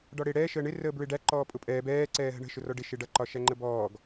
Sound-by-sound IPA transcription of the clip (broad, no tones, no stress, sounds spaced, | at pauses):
ɖ ɒ ɽ ɪː ɽ ɛː ʃ əː ɳ ɪ r əː b ɹ ɪ ɖ æ ǃ ɔː pʼ ʊ pʼ ɛː b ɛː ǀ ɛː ɦ ə̤ ɳ ə̤ ʃ ʊ r ɔ ɖ ɪ ʃ ɪ ɖ ʌ ǃ ɒ ʃ æ ŋ͡ǃ ə b ɔː ɡ